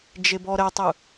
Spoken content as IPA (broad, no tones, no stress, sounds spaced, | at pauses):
d͡ʒ e b ɔ ɾ ɛ tˤ ɯ